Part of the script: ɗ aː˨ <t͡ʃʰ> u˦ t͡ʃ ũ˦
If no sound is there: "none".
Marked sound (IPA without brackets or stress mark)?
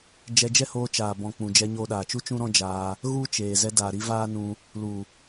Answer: t͡ʃ